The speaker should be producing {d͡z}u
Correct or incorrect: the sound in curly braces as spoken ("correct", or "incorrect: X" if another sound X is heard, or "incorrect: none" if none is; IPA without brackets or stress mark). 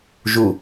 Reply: incorrect: ʒ